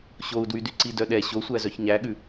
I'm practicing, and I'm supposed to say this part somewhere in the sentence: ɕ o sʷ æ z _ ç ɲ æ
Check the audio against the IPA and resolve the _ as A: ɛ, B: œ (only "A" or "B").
B